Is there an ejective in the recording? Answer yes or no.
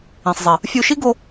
no